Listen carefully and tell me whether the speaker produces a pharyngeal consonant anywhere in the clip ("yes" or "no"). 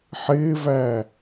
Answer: yes